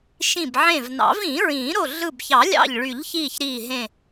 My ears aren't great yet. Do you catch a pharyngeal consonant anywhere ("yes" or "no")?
yes